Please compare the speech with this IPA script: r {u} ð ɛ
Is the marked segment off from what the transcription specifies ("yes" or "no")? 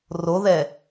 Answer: yes